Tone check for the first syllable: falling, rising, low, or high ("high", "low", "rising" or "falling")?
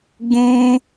high